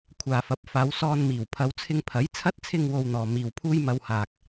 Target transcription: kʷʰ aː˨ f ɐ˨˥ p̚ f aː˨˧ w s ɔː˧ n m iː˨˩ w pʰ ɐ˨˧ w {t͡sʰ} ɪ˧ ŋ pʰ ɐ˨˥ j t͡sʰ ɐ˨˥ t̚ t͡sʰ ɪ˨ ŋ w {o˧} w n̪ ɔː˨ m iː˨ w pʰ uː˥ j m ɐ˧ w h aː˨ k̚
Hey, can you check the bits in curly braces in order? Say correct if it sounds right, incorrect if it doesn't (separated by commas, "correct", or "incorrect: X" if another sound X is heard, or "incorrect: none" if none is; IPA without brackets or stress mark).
correct, correct